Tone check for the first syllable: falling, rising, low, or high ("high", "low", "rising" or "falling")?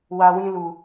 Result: low